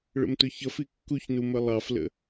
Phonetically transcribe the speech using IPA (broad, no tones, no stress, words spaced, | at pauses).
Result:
ɭə̰mtʊçʌf ikːuçnu məlˠɑflə̰